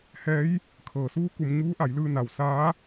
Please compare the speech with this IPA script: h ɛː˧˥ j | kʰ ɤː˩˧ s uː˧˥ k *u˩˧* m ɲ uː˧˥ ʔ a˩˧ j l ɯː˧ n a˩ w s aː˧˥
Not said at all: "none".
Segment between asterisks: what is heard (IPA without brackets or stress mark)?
u˩˧